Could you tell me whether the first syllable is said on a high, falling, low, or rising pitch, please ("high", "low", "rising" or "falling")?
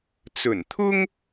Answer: low